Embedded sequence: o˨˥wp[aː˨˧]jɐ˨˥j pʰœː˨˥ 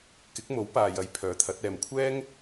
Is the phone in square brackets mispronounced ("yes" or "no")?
yes